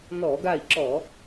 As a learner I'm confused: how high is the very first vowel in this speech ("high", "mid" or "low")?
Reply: mid